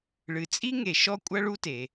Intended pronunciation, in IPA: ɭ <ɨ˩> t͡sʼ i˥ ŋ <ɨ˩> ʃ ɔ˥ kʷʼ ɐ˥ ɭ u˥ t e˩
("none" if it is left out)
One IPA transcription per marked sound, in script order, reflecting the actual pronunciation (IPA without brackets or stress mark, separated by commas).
ɨ˩, e˩